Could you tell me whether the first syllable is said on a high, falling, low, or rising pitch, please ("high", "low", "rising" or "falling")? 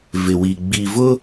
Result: low